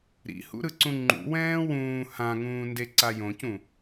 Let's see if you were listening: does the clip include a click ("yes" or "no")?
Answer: yes